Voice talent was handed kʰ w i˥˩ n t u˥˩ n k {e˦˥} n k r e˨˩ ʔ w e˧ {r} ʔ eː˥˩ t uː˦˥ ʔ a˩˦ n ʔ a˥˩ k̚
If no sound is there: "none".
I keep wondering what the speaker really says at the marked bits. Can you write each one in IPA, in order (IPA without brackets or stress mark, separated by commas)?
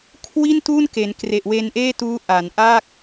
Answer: e˩˦, n